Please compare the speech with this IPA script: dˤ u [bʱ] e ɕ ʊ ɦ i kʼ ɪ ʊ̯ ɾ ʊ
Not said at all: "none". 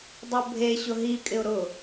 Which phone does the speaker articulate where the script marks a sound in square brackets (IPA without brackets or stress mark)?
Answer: bʱ